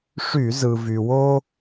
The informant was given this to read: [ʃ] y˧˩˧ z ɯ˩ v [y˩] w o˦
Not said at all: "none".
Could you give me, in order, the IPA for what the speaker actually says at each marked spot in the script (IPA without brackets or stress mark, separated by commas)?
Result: ʂ, y˩